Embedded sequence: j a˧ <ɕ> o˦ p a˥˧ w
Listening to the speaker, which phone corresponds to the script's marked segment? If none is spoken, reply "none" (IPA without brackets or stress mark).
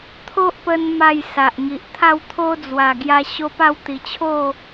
ɕ